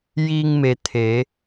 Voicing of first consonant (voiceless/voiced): voiced